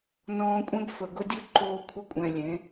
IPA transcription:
n ɔ̃ː˧ kʷʼ ɛ̃˦ ɡ f ə˨ ɡ ʊ˧ dʲ ʊ˦ ǃ oː˧ kʷʰ ə˦ kʷʼ ɛ̃˨ lʲ ẽ˨˦

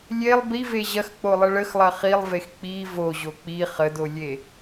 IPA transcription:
lʲ e lˠ b i v e ʑ ɐ x k͡p o lˠ ə ɭ ə x lˠ ɐ χ i lˠ v e x k͡p i v o ʑ o k͡p i χ ə d o lʲ e

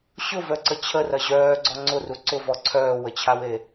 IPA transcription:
ɕ ʊ v œ ǀ ə t͡ɕʰ ə r ɐ ʑ œː ɡ͡ǀ ɔ ŋ͡ǀ ʊ r u ǀ ʊ v ɔ ǀʰ œː w ə t͡ɕʰ a w e

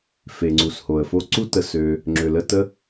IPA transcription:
f e˩ ŋ͡ǀ u˩ s h o˩ ə̯ f o˦ ǀ u˦ t ə˨ s ø˨ | ŋ͡ǁ ø˩ l ə˦ t ə˥

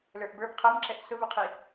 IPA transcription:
l ə˞ ʔ b ə˞ b qʰ ʌ m ǁ ɛ ʔ s ʊ v ʊ qʰ i

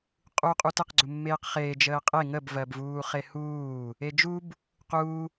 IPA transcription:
qʼ u qʼ u t ə q ɡ͡ǀ u mː eː q χ eː d͡ʒ əː qʼ e ŋ ə b v ɜ b v uː χ e h uː | e d͡ʒ u b | q u

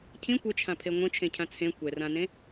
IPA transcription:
cʰ ĩ kʷ ɘ t͡ʃʰ ã pʰ e ŋʷ ə̃ t͡ʃʰ ẽ cʰ ã t͡sʰ ẽ kʷ ɛ r ã n ẽ

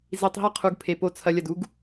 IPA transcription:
z i˨ tˤ ɦ ɐ˦ qʰ u˨ ɡ pʰ e˩ p o˨ t͡sʰ ɐ˨ lʲ ɐ˩ d u˦ ɡ

